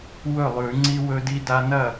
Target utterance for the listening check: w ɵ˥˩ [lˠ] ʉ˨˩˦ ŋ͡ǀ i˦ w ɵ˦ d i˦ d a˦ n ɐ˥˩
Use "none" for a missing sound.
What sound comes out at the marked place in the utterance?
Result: lˠ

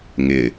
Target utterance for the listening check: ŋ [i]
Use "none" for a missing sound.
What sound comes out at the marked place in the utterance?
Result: ɪ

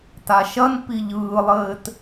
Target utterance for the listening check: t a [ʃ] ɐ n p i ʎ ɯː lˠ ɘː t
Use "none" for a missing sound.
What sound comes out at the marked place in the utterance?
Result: ʃ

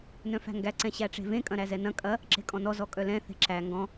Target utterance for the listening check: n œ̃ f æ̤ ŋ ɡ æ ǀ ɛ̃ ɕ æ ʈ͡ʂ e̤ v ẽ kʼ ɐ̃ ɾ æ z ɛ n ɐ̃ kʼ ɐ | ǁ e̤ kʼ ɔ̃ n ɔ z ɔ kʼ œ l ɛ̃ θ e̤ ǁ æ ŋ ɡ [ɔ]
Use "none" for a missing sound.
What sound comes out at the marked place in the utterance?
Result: ɔ̃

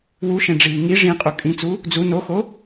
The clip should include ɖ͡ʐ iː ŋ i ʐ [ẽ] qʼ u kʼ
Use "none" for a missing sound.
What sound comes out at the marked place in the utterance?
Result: ĩ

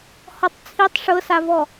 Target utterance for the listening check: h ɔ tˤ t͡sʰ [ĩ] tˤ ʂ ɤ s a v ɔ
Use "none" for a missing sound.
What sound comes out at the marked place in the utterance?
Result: i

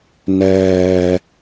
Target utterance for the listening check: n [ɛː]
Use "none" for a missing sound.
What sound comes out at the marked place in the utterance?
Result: ɛː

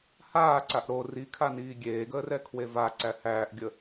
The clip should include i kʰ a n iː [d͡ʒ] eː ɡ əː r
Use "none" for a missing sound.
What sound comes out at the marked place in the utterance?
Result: ɡʲ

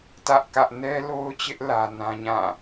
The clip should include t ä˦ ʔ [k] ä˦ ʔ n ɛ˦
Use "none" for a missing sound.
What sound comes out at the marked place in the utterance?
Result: k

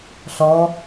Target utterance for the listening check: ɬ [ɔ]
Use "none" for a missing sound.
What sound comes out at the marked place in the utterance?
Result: ɔ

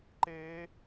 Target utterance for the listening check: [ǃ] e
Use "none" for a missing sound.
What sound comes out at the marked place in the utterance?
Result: ǃ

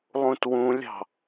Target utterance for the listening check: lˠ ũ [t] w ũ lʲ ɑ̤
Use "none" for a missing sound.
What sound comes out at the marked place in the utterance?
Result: t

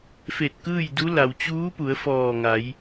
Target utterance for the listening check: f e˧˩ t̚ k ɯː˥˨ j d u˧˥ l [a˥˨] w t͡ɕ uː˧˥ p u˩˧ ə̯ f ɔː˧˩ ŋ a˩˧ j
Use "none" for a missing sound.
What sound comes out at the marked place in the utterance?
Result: a˩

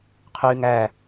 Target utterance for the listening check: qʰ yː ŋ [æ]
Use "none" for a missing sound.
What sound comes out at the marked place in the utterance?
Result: æ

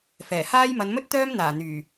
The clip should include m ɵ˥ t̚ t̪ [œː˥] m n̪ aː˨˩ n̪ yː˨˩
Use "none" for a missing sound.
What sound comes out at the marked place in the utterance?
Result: œː˥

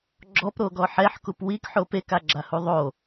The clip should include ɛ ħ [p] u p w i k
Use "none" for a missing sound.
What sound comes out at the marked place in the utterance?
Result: k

